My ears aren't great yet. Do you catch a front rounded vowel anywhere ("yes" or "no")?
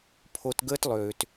yes